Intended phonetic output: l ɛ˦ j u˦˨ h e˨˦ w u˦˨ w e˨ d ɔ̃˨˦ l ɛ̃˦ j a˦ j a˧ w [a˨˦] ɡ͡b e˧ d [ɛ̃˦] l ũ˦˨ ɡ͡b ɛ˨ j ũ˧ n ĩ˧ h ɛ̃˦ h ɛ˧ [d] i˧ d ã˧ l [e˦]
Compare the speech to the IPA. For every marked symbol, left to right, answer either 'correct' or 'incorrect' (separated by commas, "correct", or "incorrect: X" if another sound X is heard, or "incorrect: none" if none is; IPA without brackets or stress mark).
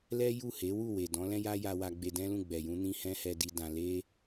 incorrect: a˧, correct, correct, correct